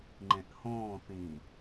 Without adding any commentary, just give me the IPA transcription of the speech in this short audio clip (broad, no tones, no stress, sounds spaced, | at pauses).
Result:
ŋ͡ǃ ẽ ʔ h õː θ ĩ